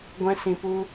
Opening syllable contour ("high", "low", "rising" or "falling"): high